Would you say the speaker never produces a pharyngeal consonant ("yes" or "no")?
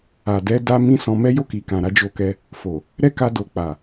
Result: yes